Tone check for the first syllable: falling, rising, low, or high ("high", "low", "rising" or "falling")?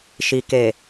low